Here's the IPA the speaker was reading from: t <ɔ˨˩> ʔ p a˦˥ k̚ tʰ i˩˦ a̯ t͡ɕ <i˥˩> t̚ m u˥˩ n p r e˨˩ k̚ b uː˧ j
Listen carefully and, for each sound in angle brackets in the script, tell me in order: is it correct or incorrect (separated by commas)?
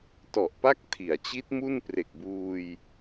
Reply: correct, incorrect